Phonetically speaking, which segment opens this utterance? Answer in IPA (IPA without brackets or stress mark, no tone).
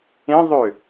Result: ẽ